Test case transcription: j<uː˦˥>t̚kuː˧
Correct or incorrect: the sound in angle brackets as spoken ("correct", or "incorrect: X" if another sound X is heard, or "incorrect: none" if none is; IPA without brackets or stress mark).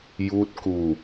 correct